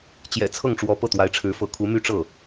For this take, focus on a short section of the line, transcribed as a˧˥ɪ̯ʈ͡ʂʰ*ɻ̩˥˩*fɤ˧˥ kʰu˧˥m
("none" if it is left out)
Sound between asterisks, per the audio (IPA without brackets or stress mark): ɻ̩˧˥